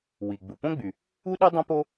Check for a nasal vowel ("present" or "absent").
present